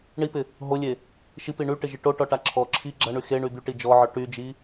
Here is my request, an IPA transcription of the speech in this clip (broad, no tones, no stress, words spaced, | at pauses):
ɳipɪ | ɦolʲe | ʃipi ɳyʈɪʒi ʈoʈɔʈa ǁʰɔ ǁʰi ɡ͡ǁaɳy xeɳy d̪yʈi d͡ʒɔʕɔ ʈyd͡ʒi